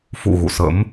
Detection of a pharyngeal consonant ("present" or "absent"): absent